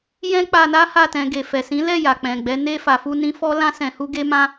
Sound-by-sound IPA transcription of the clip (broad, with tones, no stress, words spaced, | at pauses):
jɛ̃˦k͡pa˧na˦ ha˦˨tɛ̃˧ ɡe˨fɛ˨sĩ˨˦lɛ˦˨ ja˨k͡pɛ̃˨ɡ͡bɛ˨˦ ne˧fa˨fu˧nĩ˧ fɔ˦lã˦sɛ̃˧hu˦ ɡe˦mã˦